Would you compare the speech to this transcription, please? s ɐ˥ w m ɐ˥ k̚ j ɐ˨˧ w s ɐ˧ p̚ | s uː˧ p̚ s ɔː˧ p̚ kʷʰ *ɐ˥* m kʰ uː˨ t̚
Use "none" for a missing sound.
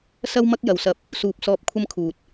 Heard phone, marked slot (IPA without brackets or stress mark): ɐ˥